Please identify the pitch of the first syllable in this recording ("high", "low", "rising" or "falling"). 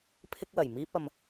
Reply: high